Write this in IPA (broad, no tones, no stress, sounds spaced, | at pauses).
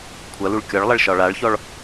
kʷʰ ɐ l u ɭ kʲ ɒ ɭ lˠ ɐ ɭ ʃ ɒ ɭ a ɭ ç ɔ ɭ